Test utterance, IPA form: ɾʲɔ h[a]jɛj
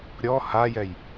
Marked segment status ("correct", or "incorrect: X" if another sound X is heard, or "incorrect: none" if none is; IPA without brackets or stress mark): correct